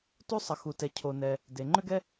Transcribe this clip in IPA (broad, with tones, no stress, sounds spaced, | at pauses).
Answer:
t u˥ sˤ ə˩ x u˩ t ɛ˩ cʰ o˩ n ɛ˩ | d e˩ ŋ͡ǃ ʏ˥ ɡ ɛ˥